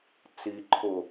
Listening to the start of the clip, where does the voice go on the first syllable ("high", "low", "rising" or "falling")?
low